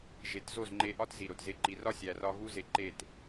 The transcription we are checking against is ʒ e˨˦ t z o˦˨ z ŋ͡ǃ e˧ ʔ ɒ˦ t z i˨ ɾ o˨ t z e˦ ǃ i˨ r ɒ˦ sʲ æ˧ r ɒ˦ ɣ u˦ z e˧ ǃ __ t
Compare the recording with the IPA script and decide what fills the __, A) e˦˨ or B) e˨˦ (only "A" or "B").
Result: A